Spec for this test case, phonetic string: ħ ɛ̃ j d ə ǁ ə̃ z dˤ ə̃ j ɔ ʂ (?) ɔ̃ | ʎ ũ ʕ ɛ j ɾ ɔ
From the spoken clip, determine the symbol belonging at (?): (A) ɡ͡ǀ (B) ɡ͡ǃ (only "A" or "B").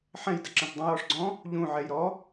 A